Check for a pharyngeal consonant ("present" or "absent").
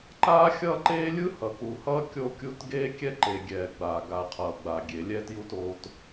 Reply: absent